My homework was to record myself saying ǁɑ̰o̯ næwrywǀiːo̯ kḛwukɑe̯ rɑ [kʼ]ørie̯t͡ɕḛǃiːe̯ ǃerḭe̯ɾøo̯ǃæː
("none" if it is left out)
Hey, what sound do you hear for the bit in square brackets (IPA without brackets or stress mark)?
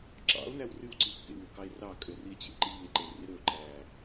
kʼ